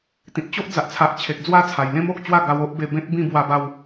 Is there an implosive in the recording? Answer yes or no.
no